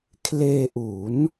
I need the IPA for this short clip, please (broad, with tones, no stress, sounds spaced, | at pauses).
kʰ l eː˧ ʔ u˩˦ n